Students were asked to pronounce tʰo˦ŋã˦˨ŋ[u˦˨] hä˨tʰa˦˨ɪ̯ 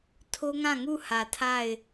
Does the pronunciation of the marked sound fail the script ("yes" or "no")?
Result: no